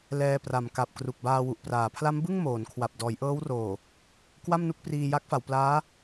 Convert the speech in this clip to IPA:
l ɛː˧ p r a˨˩ m k a˨˩ p̚ k r u˨˩ k̚ b aː˧ w u˨˩ ʔ p r aː˩˦ pʰ l a˦˥ m b ɯ˥˩ ŋ m oː˩˦ n kʰ w a˨˩ p̚ d ɔː˩˦ j ʔ ɤː˦˥ w r oː˨˩ | k w a˥˩ m n u˥˩ k̚ p r iː˧ j a˦˥ k̚ f a˩˦ w p l aː˦˥

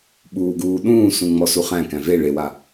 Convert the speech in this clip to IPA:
ɓ uː ɡ uː ɗ ũː s ũ ŋ͡m ɔ s u χ æ̃ k æ̃ v e ɭ e w a

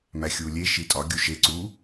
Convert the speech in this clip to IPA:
m æ xʲ u lʲ e ʃ i tʼ ɒ ɡʲ u ʃ e ǀ u

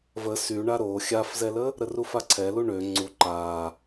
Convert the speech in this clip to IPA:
v ə s y ɳ a ɾ o xʲ a f z ɛ l ə | ɾ ə r u f a ǀʰ ɛ l u ɳ ø ŋ͡ǀ u ǃ a

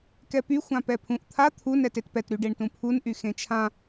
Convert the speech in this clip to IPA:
k ɛ p y xʷ ã p ɛ pʰ ũ ʔ t̪ʰ a t̪ʰ u n ɛ t e t p ɛ t ɾ y ɖ e ɳ t ũ pʰ u n ʔ y x ẽ t͡ʃʰ ã

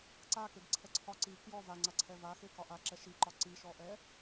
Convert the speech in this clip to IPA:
ǀ a k e ɡ ǀʰ ɛ ǀʰ ɒ ǀ i k j ɔ v a ŋ͡ǀ a ǀʰ ɛ v a x e k ɒ ʔ a ǁ ɛ ʃ i ǃ ɒ ǀ i ʃ ɔ ʔ ɛ

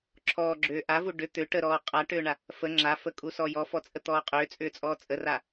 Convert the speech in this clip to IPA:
ǁʰ ɔː ɡ͡ǁ ʏː ʔ a v u ɖ ʏ t̪ ʏ ʈ ə ɾ ɔː qʼ a ʈ ʏː ɳ a | f ə ŋ͡ǁ a f ə kʼ u s ɔ j ɔ f ɔ t͡sʼ ə t̪ ɔː qʼ ʏː t͡sʼ ʏː t͡sʼ ɔː t͡sʼ ə r a

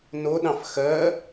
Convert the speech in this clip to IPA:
n o ɗ ɑ̃ f x ɜ

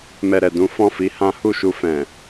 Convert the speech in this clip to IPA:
m ɛ˨ ɾ ɛ˨ d ũ˨˦ f ɔ̃˦˨ f i˨˦ h ã˦ h u˦˨ ʃ u˧ f ɛ̃˨

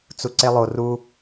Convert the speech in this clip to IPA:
t͡s u ǀ e lˠ o r u

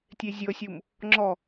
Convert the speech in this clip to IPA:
tʲ e zʲ ɤ sʲ u m | ŋ͡ǁ ɔ

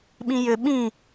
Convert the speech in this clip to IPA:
ɓ ĩ j ʏ ɓ ĩ

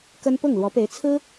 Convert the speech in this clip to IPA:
k ə˥ n p ʊ˥˩ ŋ l w ɔ˧˥ p e˧˥ ɪ̯ t͡sʰ ɹ̩˥

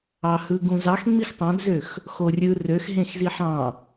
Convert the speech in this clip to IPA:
ɑ h ɯ ɡ ũ z ɑ x ŋ͡m i x tˤ ɑ̃ d z ø x | x o rʲ ɯ r ø x ɦ ẽ x z i ħ ɑ̃

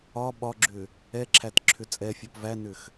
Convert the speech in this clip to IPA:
ɒ ɓ ɒ ɡ͡ǁ ʏ | ɛ ǁʰ æ t ǁʰ ʏ t͡sʼ ɛ fʲ ɔ p v æ n ʏ x

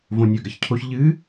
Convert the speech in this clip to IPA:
v õ nʲ ɵ ɡ ɐ ç cʰ o ç ʎ ɨ

